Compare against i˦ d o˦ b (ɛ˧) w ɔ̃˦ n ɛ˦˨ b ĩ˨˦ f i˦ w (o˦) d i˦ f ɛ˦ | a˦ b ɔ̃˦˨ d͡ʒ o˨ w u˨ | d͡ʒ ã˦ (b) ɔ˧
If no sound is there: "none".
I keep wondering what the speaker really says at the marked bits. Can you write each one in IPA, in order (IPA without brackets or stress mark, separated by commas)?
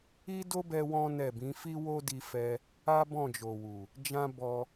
ɛ˧, o˦, b